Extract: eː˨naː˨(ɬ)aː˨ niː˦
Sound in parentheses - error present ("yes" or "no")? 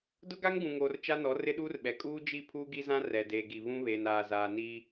yes